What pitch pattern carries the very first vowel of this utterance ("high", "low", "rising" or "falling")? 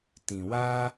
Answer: low